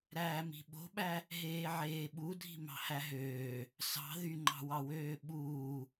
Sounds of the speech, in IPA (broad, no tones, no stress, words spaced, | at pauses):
ɾæːmi̤ɓo̤ɓæ | ɦeːʕeːɓudʱi̤ mɑ̤hæɦøː | sɑ̤ ðyŋ͡ǃɑ̤wɑwøː ɓuː